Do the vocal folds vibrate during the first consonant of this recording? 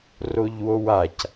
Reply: yes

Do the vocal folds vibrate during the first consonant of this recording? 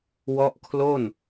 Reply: yes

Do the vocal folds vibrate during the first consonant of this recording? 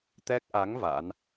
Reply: no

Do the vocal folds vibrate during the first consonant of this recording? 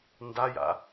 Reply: yes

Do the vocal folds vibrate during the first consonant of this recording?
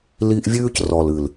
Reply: yes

